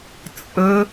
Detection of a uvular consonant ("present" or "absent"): absent